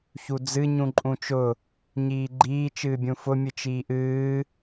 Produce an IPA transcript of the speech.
ç u d͡z ɨ ɲ ũ ǃʼ ũ t͡ʃ ʊ | ɲ iː ɡ͡ǃ iː t͡ʃ ɨː bʲ ũ f ʊ mʲ ɨ t͡ʃ iː ʔ ɨː

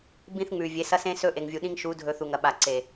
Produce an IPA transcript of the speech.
b ĩ˦ θ ŋ͡m ʉ˨ vʲ e˨˦ s ɐ˦ s ẽ˦ s ɵ˦ ʔ e˨ ŋ vʲ u˨ ɗ ĩ˦ ŋ ʃ u˨˦ dʱ ɵ˨ θ u˨ ŋ ɐ˨ ɓ a˨ ǀ e˨

